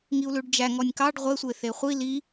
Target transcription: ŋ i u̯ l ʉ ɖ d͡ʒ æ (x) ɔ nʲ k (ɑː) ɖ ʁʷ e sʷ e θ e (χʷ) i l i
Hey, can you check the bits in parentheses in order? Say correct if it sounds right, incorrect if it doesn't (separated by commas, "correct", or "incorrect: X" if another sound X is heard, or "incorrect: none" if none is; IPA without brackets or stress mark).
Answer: incorrect: ŋ, incorrect: ɑ, correct